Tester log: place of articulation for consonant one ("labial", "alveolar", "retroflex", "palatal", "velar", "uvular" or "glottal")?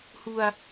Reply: glottal